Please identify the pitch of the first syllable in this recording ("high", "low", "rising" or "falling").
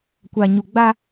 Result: low